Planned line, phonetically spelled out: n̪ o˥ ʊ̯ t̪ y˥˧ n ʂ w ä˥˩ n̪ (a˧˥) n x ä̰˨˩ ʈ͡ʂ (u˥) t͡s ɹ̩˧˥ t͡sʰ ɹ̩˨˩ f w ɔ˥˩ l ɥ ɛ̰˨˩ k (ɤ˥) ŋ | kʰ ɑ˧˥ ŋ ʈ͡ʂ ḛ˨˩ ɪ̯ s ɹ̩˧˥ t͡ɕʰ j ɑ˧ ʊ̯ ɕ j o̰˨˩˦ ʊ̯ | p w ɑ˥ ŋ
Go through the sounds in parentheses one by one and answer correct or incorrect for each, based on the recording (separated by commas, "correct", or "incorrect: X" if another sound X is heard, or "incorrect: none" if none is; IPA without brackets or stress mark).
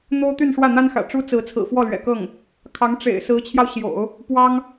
incorrect: a˥, correct, incorrect: ɤ˥˩